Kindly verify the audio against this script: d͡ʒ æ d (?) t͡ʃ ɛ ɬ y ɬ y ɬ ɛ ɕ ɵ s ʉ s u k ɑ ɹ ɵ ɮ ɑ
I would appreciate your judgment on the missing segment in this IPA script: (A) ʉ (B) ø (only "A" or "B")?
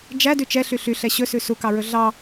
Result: A